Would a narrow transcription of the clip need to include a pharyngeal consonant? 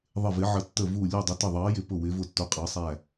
yes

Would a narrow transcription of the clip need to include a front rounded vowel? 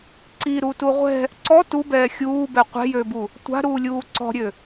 yes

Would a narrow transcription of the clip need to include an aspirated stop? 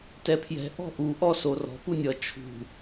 yes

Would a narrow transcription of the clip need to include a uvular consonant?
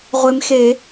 yes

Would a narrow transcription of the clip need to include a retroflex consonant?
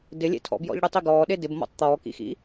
yes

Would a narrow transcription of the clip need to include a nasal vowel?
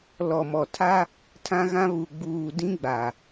yes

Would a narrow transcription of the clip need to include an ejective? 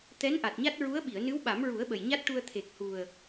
no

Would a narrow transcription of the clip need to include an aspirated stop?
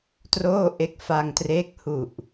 no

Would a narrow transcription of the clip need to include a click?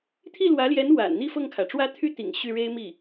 no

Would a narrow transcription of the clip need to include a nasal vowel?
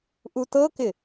no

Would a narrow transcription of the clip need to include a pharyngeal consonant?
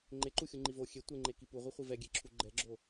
no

